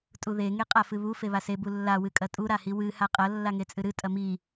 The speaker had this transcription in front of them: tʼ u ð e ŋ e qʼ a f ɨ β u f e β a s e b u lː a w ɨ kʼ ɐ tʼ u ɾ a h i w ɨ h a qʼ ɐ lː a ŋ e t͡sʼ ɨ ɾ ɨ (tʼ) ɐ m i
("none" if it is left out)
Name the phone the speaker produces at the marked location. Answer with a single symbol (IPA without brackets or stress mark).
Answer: tʼ